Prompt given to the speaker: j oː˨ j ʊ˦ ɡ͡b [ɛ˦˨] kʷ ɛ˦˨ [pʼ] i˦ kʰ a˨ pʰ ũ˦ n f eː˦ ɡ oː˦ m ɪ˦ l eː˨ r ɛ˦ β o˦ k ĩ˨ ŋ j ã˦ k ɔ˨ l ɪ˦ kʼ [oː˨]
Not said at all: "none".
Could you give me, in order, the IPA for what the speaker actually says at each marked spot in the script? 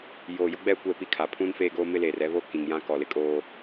ɛ˦˨, p, oː˦

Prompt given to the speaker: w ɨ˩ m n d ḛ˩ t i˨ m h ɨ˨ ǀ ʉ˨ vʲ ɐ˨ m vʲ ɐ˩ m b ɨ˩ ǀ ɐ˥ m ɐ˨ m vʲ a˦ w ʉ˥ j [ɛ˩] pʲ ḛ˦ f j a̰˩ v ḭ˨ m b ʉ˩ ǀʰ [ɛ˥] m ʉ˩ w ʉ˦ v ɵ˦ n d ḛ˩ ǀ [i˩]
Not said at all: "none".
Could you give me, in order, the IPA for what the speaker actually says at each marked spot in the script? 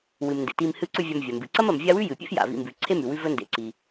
ɨ˩, e˥, i˩

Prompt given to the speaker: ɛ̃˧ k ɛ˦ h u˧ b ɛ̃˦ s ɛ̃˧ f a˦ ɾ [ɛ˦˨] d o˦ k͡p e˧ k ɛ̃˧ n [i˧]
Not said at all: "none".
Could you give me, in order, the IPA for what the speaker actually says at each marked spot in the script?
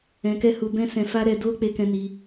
ɛ˧, i˧

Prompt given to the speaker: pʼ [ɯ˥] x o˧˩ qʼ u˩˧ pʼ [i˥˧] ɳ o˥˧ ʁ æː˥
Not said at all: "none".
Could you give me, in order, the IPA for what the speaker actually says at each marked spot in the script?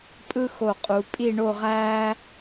ɯ˥, i˥˧

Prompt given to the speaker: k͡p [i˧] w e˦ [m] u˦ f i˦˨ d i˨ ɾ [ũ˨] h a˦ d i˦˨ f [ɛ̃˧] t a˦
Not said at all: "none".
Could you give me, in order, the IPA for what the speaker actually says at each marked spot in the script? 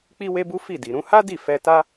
i˦, b, ũ˨˦, ɛ˧

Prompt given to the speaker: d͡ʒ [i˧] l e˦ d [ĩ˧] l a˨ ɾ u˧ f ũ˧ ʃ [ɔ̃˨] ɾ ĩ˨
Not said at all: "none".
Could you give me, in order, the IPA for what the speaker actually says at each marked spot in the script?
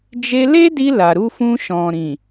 e˧, i˧, ɔ̃˨

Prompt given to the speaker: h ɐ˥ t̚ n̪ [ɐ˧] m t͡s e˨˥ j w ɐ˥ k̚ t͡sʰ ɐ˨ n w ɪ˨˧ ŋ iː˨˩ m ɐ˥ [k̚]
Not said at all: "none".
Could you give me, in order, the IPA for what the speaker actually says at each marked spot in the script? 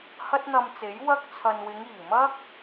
ɐ˧, k̚

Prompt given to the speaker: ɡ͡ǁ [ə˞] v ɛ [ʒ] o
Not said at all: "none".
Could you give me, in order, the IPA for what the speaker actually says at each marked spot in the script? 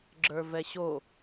ə˞, ɕ

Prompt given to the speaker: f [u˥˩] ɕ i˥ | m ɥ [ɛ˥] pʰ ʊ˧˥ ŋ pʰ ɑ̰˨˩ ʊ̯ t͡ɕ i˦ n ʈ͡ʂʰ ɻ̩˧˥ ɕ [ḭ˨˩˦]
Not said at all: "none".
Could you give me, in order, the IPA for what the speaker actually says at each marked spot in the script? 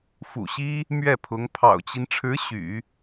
ṵ˨˩, ɛ˥˩, y̰˨˩˦

